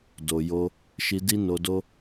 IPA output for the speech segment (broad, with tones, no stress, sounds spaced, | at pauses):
d o˨ j o˧ | ʃ i˧ d i˦ n o˧ d o˦